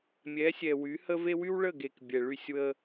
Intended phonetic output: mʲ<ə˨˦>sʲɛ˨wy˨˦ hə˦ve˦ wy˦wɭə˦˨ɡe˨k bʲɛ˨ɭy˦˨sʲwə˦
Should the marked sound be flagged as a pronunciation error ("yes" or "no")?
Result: yes